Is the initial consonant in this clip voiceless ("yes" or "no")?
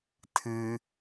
yes